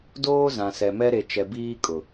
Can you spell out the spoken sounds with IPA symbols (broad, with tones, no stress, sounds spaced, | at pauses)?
d oː˦ z ã˨ s ɛ˨ m ɛ˦ ɾ e˨ t͡ʃ ɛ˨ b iː˦ kʼ ʊ˨